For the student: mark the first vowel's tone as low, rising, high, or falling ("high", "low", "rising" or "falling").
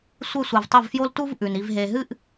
falling